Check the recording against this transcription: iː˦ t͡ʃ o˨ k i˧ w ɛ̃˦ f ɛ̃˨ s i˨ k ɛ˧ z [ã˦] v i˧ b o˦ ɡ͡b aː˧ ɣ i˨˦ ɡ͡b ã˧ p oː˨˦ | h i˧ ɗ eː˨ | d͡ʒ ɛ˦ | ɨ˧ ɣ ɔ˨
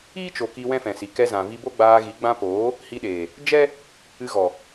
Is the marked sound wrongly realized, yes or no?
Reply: yes